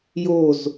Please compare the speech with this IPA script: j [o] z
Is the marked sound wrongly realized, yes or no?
no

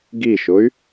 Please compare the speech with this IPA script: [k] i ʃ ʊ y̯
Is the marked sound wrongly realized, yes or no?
yes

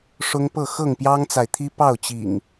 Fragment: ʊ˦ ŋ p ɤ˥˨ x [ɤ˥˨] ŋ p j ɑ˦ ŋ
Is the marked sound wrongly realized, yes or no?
no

